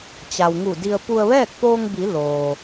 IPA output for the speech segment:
t͡ɕa˩w ŋu˧˩di˧ə̯ pu˧ə̯ʋɛː˥˨k̚poː˧ŋbi˩˧ loː˩

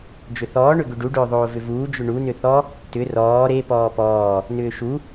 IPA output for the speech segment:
d͡ʒʏθɔː ɳʏɡʏɖu ɖʏːðˤoːvʏvuː d͡ʒʏɳu nʏθɔ | tʏ rɔː ɾe pɔːpɔː | nʏːʃu

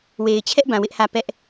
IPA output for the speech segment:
we˨ɪ̯t͡ɕʰɛ˦ʔbã˨ wɪ˦ʔhä˦˨ pɛ˦ʔ

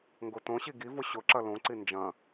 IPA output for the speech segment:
ŋɡotõɕi ɡivʊ ɕʊǁɐ lõǀi nd͡ʒɐ̃

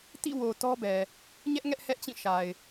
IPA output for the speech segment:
tḭ˦˨wo˨ tɔ˦bɛ˨ | ɲɛ˦ʔ ŋɛ˦ʔhɛ˦ʔt͡ɕĩ˦˨ ʃa˨ɪ̯

